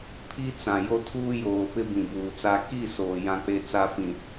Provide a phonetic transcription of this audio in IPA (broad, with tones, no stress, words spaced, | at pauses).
pʰi˦t͡sã˨jo˦ tʰuː˦joː˨pɪ˦ bĩ˨buː˨t͡sa˦ ki˦˨ soː˨jã˦k͡pe˦ t͡sa˦fĩ˨